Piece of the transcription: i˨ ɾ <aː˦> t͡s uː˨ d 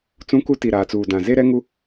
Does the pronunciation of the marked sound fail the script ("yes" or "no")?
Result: yes